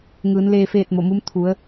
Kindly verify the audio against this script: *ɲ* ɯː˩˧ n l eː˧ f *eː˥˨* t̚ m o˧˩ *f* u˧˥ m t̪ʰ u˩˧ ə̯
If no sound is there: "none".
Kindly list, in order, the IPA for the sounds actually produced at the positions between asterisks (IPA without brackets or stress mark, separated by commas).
ŋ, eː˥˨, m